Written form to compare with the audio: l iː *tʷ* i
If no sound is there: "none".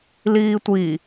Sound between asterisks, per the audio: tʷ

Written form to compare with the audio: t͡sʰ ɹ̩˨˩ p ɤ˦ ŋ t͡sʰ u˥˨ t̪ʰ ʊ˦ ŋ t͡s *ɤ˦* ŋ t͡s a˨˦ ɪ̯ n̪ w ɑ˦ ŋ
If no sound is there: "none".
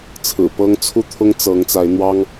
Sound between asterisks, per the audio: ɤ˨˦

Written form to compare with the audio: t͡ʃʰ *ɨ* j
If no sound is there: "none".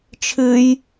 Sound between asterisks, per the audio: ɨ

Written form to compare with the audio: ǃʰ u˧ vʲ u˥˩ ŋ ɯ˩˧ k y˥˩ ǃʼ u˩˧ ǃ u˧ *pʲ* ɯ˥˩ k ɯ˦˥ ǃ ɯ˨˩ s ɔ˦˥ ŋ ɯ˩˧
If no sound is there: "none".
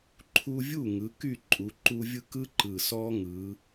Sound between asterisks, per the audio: vʲ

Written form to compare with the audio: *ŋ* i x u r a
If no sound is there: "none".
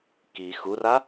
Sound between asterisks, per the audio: k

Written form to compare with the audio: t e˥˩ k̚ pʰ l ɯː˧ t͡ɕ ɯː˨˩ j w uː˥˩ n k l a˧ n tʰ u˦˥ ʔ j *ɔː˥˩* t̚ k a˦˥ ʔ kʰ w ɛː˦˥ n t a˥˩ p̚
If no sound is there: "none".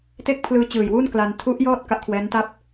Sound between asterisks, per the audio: ɔː˥˩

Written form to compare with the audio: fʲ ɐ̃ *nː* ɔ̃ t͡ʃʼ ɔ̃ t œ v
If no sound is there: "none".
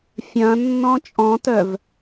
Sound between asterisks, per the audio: nː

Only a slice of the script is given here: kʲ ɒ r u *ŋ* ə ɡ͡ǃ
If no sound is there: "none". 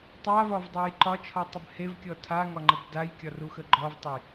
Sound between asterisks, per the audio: x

